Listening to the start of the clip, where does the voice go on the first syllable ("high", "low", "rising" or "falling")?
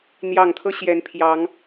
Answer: low